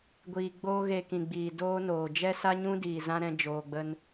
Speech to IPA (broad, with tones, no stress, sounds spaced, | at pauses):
ɡʷ iː˨ ɡ͡b oː˧ ɣ eː˧ k ĩ˨ ɡ͡b iː˨ d oː˦ n oː˨ d͡ʒ ɛ˦ s a˦ ɲ ũ˦ d iː˨ z ã˦ ɾ ɛ̃˧ d͡ʒ oː˨ ɡ͡b ə˧ n